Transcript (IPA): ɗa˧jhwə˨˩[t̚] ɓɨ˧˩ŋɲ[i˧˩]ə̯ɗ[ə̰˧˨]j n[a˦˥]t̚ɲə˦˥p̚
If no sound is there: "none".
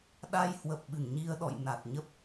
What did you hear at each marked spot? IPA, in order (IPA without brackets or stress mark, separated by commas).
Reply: p̚, i˧, ɔ̰˧˨, a˨˩